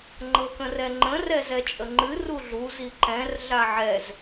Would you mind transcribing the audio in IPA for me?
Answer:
ŋ͡ǃɤkə̃rɛŋ͡ǃə̃ rɛzɛt͡ʃʼəŋ͡ǃɨ ruɮu ziǃɛ̃r ɮaʕɛz

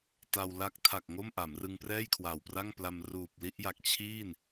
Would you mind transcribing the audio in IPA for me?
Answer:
ta˧w la˦˥k̚tʰa˨˩k̚ ŋo˥˩mʔa˩˦mrɯ˧ŋprɛː˥˩j kʰwa˨˩wpra˥˩ŋpla˧m ruː˨˩p̚li˥˩ʔja˨˩k̚ t͡ɕʰiː˥˩n

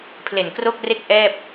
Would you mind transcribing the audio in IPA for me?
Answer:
pʰle˨˩nkro˥˩k̚re˥˩k̚ ʔɛː˥˩p̚

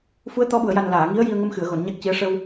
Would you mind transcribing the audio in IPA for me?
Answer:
fu˧˥ə̯t̪ɔ˧˥ɓu˨˩˨ə̯ja˨˩n laː˨˩˨ŋi˧˥ə̯ji˧ə̯ŋə˧m xɨ˨˩˨ə̯ɣo˨˩˨n ɲa˦˥k̚ci˧˥ə̯ ʂə˧w

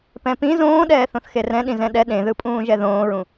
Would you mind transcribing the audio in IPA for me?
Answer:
pɛ̃pĩ zõːɗɛːθõθ xerɛ̃ ɗĩzɛ̃ɗɛ ɗẽðɯpʼũː ʒɛðõːɹũ

